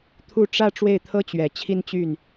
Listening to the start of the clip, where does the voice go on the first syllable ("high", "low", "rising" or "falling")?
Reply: falling